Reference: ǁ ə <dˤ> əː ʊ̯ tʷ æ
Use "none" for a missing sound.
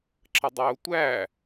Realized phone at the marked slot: dˤ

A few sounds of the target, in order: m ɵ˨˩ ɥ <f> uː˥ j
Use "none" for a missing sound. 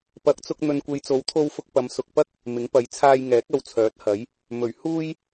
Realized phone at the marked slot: h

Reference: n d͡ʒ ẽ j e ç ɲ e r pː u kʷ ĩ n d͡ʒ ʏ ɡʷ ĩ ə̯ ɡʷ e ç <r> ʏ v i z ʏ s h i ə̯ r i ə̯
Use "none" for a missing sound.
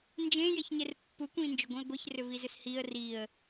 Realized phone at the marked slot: r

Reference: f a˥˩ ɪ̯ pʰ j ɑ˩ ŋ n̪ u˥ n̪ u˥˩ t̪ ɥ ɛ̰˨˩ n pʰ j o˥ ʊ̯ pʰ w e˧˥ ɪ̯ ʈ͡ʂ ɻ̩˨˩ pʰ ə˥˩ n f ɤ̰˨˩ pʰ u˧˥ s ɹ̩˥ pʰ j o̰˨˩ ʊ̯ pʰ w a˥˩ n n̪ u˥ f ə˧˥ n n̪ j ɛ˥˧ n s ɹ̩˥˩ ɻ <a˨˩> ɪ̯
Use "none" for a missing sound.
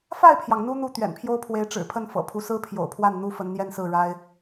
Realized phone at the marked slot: a˥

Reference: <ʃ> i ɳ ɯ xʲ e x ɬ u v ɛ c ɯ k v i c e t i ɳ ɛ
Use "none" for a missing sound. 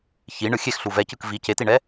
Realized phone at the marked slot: ç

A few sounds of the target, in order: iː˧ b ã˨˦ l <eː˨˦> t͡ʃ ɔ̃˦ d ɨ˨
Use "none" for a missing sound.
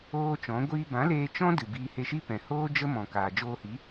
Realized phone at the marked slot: eː˧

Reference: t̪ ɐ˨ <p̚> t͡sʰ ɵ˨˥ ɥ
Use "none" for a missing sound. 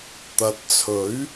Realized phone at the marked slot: t̚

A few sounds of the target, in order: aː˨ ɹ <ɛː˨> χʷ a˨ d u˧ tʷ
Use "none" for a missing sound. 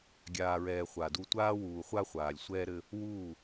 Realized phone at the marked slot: ɛː˨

